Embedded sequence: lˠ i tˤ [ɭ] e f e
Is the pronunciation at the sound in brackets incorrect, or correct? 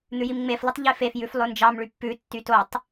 incorrect: ʎ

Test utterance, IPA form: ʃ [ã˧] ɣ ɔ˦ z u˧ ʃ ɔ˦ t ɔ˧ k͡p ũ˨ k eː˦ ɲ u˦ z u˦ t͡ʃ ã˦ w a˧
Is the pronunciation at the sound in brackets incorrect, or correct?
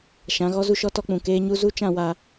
incorrect: ã˨˦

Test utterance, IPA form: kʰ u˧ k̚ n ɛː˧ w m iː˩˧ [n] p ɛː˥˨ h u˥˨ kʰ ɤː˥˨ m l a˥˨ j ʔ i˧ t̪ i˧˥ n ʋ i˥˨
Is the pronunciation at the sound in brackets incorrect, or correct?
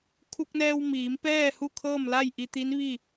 incorrect: m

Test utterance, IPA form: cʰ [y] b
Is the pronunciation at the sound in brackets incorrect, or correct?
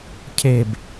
incorrect: e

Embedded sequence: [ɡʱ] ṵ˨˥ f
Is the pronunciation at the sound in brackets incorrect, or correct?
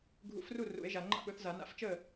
correct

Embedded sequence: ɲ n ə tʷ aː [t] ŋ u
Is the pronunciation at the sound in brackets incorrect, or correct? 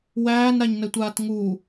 correct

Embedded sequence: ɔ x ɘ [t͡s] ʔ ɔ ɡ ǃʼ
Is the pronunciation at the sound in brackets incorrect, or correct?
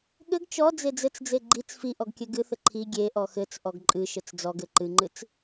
correct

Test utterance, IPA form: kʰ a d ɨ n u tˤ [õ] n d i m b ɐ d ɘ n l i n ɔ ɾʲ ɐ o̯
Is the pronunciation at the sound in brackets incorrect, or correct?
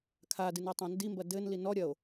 correct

